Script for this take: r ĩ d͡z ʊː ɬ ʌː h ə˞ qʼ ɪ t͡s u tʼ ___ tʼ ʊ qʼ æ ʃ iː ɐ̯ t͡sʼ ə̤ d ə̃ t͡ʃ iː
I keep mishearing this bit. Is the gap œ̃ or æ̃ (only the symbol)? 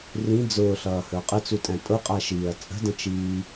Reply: æ̃